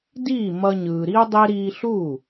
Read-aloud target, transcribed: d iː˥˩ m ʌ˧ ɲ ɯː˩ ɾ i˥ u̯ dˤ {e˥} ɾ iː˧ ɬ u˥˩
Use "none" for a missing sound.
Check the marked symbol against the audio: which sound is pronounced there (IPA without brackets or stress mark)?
e˥